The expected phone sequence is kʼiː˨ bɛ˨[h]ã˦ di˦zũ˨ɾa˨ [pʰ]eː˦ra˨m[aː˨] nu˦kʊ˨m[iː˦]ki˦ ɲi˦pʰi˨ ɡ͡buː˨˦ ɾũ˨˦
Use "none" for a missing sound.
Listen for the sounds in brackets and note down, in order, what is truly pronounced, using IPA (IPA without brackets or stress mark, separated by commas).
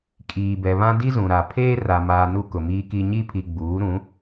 β, pʰ, aː˨, iː˦